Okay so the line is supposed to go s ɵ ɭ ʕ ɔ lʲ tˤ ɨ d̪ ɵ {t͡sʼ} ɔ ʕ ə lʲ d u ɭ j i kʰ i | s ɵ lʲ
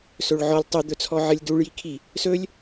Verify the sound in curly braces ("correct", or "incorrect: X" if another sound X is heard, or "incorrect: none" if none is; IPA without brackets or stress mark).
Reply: incorrect: t͡sʰ